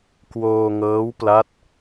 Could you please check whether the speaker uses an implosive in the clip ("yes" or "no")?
no